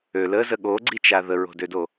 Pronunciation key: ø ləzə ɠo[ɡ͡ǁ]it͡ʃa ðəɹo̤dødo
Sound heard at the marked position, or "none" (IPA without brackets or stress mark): ɡ͡ǀ